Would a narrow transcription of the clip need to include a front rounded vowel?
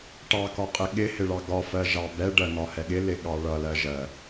no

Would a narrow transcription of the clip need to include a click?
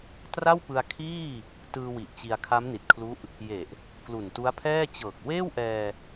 no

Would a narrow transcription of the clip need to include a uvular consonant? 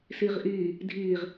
yes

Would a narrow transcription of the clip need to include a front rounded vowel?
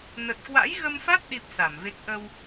no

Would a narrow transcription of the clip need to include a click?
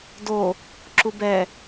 yes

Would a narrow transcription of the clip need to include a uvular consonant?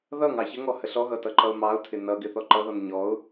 no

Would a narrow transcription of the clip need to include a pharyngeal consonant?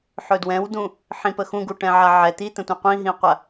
yes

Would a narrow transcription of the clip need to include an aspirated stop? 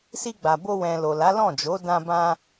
no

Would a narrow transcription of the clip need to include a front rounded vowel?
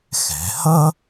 no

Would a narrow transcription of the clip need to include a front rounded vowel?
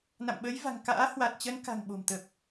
no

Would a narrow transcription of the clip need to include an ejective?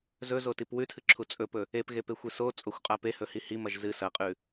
yes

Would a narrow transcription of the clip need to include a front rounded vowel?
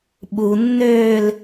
yes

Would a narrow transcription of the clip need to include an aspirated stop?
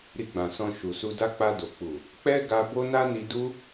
no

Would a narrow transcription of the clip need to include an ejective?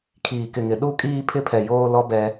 yes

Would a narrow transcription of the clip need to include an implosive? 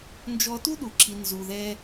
yes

